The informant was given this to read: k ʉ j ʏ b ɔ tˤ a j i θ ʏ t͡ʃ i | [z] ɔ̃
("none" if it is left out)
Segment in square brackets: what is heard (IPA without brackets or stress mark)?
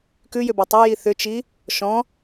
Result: ʃ